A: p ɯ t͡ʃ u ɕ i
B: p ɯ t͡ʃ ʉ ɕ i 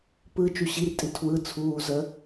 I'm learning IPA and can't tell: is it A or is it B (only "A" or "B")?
A